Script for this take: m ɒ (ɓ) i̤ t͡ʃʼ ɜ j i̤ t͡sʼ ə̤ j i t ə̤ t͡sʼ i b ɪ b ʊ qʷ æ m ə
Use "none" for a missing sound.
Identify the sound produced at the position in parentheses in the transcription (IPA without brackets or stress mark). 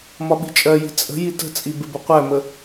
ɓ